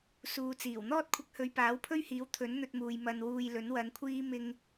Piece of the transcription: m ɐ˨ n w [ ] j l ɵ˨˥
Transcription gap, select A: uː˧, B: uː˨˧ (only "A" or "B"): A